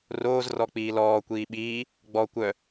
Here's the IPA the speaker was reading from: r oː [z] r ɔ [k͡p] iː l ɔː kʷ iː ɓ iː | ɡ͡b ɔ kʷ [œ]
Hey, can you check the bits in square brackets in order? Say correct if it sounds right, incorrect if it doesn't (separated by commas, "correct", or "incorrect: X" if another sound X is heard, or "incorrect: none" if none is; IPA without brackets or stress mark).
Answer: correct, correct, correct